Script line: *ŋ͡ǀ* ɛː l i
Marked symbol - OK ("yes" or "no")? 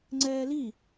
yes